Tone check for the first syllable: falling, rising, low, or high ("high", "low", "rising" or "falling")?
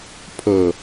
low